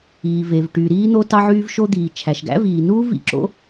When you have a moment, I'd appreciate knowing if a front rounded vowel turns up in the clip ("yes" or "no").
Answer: yes